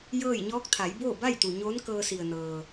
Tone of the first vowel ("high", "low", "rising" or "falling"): falling